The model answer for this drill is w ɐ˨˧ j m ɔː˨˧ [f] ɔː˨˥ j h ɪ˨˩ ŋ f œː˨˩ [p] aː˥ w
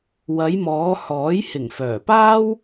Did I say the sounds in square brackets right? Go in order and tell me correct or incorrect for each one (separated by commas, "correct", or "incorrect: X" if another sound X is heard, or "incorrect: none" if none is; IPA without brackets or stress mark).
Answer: incorrect: h, correct